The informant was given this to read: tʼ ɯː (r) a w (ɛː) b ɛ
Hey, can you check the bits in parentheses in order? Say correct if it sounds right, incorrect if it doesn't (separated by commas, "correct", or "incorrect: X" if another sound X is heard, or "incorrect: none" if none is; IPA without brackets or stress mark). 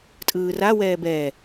correct, correct